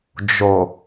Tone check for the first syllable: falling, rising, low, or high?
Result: low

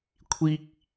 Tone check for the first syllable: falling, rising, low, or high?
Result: high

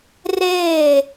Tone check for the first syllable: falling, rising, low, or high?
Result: falling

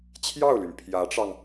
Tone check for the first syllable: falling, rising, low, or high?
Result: falling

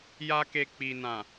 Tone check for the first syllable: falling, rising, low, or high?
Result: high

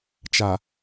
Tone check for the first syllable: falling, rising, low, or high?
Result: low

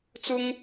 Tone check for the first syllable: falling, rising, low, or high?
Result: high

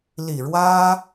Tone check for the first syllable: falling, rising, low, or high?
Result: low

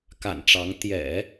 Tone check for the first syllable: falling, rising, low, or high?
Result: low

